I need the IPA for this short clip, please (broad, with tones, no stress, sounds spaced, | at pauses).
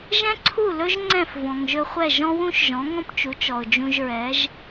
ʒ ɛ̃˥ ǀʰ u˥˩ l ɵ˥ ʒ ŋ͡ǀ ɛ̃˥˩ f v ɔ̃˩ ŋ ʒ ɵ˧ χʷ ɛ˥˩ ʒ ɔ̃˥ w ũ˥ ʃ ʒ ɔ̃˩˥ ŋ ɔ̃˥ p t͡ʃ u˩˥ t͡ʃ ɔ˩ ʊ̯ d͡ʒ ũ˧ ʒ ɹ ɛ˩˥ ʒ